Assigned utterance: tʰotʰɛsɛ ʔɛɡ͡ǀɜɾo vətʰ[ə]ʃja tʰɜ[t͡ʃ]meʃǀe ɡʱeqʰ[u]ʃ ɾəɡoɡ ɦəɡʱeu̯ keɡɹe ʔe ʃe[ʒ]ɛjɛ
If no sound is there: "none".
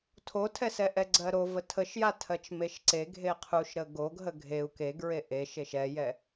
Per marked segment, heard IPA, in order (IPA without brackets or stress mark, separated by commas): ə, t͡ʃ, u, ʃ